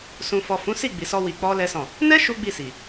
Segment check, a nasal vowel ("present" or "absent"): present